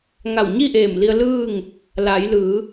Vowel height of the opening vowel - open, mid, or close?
open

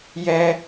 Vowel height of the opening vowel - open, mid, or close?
mid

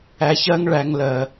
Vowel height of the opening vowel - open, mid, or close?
open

